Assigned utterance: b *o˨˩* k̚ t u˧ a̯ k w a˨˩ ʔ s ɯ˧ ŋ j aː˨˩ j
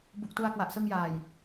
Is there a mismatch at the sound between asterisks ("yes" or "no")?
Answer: yes